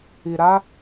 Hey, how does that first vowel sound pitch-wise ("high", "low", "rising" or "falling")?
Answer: low